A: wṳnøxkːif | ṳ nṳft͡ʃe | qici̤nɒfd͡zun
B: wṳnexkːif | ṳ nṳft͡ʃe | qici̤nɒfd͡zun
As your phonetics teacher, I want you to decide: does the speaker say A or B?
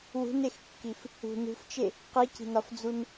B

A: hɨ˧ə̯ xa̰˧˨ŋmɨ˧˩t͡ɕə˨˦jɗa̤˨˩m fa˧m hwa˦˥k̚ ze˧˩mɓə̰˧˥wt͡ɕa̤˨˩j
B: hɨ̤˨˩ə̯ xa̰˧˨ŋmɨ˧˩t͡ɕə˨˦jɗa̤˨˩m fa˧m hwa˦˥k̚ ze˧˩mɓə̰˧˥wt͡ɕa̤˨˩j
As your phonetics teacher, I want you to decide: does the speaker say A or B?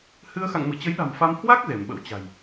A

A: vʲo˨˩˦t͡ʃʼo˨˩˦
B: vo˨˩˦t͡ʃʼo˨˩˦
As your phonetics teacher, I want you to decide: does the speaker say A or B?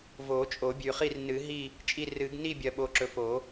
B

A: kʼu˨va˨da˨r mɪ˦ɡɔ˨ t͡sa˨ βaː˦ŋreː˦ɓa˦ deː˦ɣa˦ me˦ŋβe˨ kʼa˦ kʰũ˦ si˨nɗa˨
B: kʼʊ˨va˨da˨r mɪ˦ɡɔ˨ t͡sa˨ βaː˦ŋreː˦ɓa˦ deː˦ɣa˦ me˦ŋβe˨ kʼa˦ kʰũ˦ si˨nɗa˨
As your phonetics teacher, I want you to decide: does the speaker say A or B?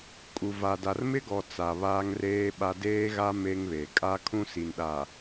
A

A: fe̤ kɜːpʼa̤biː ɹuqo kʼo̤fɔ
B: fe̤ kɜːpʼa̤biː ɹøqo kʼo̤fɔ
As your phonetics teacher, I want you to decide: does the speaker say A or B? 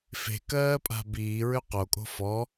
B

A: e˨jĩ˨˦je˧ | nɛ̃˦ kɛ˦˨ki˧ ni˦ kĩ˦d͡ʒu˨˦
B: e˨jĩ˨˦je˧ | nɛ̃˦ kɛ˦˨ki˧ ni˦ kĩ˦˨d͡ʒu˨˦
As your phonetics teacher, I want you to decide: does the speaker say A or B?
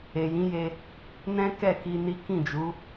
B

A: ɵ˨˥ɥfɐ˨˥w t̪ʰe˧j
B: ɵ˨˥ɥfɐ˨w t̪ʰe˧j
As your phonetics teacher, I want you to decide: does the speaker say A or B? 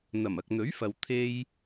B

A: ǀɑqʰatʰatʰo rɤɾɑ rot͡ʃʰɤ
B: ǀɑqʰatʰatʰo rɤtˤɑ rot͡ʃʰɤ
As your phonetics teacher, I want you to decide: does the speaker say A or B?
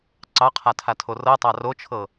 B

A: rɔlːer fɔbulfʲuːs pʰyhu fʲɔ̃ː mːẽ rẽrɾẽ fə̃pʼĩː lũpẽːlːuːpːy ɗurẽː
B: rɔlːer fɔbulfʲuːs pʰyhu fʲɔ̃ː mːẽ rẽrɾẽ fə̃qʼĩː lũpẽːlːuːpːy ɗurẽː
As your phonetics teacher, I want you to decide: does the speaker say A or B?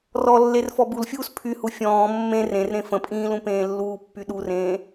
A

